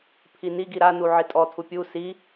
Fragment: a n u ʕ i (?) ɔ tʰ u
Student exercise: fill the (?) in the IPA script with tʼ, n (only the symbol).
tʼ